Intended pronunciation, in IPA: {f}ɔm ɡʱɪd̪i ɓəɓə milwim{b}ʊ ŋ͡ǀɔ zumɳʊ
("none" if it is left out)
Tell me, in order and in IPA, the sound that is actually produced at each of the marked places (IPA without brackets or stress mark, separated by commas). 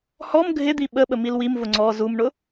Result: h, v